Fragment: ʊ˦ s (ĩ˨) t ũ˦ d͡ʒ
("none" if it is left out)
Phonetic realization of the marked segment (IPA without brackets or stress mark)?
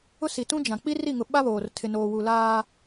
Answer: i˨